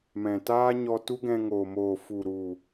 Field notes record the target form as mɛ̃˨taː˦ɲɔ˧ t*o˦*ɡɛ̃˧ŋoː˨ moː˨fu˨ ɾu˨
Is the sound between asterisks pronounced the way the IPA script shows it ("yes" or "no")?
no